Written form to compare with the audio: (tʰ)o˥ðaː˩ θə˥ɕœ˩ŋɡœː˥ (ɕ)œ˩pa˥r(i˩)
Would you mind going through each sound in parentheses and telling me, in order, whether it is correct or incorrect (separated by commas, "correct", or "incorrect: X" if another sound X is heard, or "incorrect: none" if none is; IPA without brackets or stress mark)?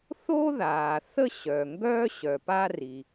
incorrect: θ, correct, correct